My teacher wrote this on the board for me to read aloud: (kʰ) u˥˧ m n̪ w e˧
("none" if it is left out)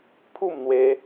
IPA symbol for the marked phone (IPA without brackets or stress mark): pʰ